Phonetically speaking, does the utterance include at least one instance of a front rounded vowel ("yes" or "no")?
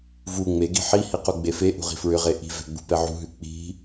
yes